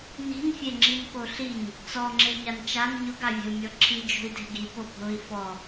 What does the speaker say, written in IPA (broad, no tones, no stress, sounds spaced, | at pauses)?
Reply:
n i̤ n fʲ e ŋ͡ǁ i n k o ɬ i ɲ | t͡s ɔ ŋ͡ǁ e ɲ a n t͡ʃ a n ɲ ʊ ɡ a vʲ ɛ̤ u̯ mʲ ɔ ǁʰ i d͡ʒ o̤ i̯ d e̤ ɡ i p o bʱ ʊ i̯ f ɔ